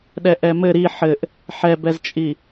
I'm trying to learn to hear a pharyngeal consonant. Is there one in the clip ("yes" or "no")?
yes